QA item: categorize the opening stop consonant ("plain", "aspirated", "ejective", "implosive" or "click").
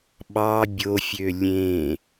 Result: implosive